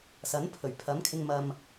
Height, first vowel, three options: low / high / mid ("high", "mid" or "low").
low